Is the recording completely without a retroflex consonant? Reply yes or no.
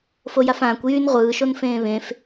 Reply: yes